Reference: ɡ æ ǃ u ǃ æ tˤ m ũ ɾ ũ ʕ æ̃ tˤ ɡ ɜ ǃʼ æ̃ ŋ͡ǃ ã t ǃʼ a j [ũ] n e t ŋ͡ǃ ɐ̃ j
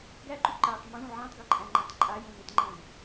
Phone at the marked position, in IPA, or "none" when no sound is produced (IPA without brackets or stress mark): ũ